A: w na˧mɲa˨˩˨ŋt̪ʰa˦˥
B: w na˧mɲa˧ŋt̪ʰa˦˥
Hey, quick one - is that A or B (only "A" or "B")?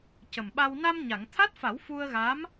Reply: A